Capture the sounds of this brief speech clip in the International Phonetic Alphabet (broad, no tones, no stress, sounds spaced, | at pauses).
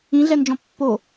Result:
ĩ ɮ ɛ n d͡ʒ ɔ̃ pː o